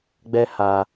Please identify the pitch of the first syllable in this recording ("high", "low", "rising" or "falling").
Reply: high